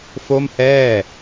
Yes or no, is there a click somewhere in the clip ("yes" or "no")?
no